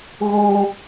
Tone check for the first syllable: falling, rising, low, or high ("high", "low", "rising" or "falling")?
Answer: high